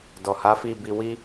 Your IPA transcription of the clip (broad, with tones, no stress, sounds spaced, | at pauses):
d ɔ˨ h a˨˦ f i˦˨ b i˧ w i˦